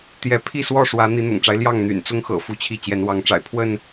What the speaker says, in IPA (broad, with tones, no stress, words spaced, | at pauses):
t̪jɛ˨˦pʰi˥˨swɔ˥˨ʂwä˨˦ n̪i˨˦n̪ʊ̰˨˩ŋʈ͡ʂa˦ɪ̯ ljɑ˥˨ŋn̪y̰˨˩nt͡sʊ˦ŋxɤ̰˨˩ fu˦t͡ɕʰi˥˨ t͡ɕjɛ˨˦nwɑ˨˦ŋʈ͡ʂa̰˨˩ɪ̯ pʰwə˥˨n